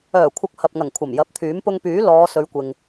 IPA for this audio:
œː˨˩ kʷʰ ɐ˨ k̚ h ɐ˨ p̚ ŋ ɐ˨˩ ŋ kʷʰ ɐ˨˩ m j ɐ˨˥ p̚ t̪ʰ yː˨˥ m p ʊ˧ ŋ p yː˨˥ l ɔː˨˧ s ɵ˨˧ ɥ kʷ ɪ˨ ŋ

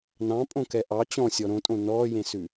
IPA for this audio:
n ɑ̃ pʼ õ k ɛ ʔ ɑ t͡ɕ ɔ̃ sʲ ɔ ɾ õ tʼ õ n ɔː j ẽ s ʉ

